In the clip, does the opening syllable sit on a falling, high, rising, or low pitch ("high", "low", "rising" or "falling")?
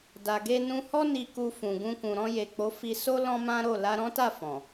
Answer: low